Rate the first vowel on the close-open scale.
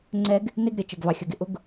mid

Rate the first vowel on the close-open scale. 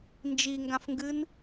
close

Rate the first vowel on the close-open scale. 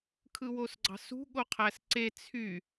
close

